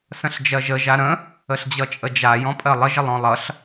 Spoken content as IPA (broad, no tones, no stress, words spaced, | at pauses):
sə̃ɬd͡ʒɜʒə ʒaɾə̃ | əɬd͡ʑʌt͡ʃʼəd͡ʒa jɔ̃pʼɜlˠə ʒəlˠɔ̃lˠʌɬ